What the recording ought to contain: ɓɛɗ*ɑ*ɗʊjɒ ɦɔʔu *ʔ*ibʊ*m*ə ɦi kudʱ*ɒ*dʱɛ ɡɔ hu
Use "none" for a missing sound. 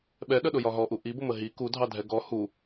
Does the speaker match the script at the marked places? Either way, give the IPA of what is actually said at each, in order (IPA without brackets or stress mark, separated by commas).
ə, ʔ, m, ɑ